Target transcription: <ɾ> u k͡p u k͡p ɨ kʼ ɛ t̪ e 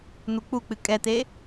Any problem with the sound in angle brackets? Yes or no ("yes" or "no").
yes